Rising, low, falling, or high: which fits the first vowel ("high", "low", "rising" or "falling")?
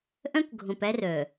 high